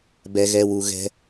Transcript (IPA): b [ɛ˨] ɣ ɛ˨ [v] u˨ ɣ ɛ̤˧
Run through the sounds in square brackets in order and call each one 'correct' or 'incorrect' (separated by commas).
correct, incorrect